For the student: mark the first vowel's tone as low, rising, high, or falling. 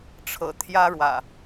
low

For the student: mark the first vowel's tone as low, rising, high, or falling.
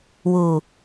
low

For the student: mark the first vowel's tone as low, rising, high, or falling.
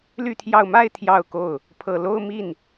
falling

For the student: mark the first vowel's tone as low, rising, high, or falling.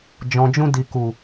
low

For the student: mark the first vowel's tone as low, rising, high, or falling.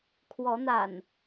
rising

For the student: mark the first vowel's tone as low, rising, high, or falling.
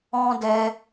high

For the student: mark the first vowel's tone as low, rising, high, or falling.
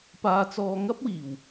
low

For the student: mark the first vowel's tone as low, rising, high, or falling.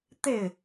falling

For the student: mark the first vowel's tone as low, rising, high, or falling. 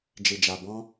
low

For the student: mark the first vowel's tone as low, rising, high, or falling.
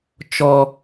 high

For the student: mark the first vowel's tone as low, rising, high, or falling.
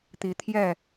rising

